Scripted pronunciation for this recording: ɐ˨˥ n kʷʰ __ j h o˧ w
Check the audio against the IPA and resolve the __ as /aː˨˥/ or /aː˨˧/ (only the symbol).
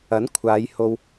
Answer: aː˨˧